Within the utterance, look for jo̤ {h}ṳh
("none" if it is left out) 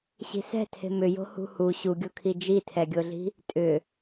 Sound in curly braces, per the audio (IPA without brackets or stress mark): h